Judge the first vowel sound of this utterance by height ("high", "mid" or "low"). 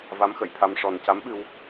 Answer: low